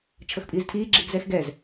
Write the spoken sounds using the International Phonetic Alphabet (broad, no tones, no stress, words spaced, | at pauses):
t͡ʃʰɤxpʼiːztʰiːɡ͡ǁiːɡ zɛxɡɛz